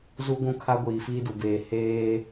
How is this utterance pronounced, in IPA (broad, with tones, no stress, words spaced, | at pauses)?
zu˦ɡʷũ˦kʰa˦ ɡʷiː˨fiː˦du˨beː˨ heː˦